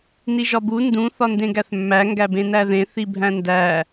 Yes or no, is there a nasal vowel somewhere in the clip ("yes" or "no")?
yes